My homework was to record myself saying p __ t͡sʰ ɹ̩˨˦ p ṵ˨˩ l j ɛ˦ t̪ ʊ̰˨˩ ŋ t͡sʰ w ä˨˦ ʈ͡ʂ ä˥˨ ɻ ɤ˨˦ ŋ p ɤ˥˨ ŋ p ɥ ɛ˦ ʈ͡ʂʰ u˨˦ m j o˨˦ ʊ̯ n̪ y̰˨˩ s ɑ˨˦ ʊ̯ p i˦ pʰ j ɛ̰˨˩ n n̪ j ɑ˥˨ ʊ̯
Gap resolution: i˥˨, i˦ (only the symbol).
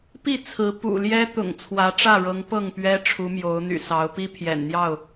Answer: i˥˨